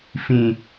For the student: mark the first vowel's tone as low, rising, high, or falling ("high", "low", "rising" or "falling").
high